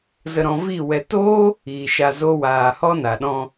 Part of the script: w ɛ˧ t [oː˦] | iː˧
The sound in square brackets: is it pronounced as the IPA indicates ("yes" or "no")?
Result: yes